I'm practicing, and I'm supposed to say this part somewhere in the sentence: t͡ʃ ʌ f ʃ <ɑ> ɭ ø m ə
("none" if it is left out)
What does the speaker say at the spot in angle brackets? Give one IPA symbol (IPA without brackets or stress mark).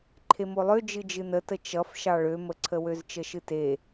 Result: ɑ